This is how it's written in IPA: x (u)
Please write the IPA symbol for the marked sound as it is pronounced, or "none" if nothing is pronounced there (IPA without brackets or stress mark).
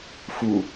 u